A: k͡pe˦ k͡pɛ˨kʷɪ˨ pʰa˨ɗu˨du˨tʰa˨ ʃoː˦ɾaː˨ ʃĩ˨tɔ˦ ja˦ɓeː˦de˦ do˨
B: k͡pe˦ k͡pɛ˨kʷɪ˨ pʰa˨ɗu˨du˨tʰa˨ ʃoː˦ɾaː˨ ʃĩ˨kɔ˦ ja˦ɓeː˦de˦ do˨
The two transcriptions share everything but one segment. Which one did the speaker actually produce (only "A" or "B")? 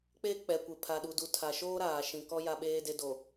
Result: B